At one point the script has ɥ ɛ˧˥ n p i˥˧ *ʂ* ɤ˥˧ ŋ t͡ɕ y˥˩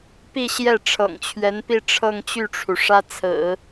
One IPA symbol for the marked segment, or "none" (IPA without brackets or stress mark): ʈ͡ʂʰ